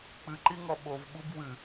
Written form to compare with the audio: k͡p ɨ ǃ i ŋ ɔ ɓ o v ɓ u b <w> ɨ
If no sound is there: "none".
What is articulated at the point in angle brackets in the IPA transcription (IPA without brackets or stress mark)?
w